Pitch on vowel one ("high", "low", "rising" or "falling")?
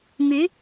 rising